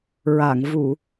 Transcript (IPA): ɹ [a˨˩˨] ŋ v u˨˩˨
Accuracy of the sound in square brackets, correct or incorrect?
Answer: correct